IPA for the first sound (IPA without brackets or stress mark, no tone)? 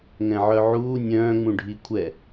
ŋ